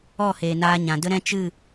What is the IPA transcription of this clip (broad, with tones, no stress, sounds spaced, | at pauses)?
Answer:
ɔ˦˨ h eː˨ n aː˧ ɲ ã˨ d ə˦ ɾ ɛ̃˦ t͡ʃ ɨ˦˨